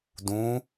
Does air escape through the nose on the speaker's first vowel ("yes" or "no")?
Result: yes